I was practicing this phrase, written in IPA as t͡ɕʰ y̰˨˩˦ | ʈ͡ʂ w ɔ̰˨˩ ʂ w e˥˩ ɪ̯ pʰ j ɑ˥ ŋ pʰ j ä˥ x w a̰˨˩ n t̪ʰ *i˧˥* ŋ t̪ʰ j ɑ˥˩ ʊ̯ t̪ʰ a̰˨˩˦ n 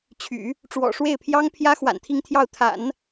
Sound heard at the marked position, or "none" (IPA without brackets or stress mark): i˥˧